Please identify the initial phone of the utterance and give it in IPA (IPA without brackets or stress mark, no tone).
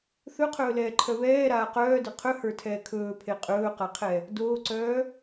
θ